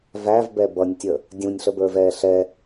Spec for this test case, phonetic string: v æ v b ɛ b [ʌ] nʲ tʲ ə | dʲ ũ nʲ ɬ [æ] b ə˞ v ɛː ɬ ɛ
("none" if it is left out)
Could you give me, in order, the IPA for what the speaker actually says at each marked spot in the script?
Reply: ʌ, ə

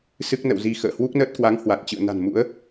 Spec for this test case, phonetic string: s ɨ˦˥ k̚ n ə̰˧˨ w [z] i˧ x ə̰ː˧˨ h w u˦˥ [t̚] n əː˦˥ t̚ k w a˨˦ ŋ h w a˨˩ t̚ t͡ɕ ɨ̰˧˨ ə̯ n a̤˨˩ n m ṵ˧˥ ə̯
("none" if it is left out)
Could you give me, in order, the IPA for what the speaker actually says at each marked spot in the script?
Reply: z, k̚

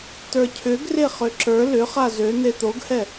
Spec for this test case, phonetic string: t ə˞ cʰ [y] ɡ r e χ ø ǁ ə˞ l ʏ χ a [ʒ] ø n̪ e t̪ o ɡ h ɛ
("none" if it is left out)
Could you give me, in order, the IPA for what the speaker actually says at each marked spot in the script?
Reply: ʏ, z

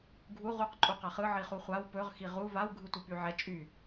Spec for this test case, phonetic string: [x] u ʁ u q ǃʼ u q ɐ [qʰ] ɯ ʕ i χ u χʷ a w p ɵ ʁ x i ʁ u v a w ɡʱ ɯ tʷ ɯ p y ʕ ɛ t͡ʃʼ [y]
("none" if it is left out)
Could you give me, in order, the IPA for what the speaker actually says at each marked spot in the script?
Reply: ɡʱ, χ, y

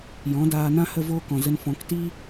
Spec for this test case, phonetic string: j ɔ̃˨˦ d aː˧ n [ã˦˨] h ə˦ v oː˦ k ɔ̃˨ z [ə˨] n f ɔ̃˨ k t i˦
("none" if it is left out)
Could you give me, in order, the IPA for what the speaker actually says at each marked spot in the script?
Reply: ã˦, ə˧

